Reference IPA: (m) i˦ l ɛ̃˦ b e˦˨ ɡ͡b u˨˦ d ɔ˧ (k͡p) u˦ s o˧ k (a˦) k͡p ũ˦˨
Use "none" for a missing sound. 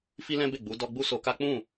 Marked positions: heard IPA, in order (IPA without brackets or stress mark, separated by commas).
f, ɡ͡b, a˦